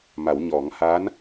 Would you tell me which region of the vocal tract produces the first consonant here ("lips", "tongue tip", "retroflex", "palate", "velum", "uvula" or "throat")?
lips